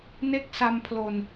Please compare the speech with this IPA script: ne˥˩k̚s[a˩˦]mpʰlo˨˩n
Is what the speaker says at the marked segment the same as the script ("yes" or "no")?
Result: no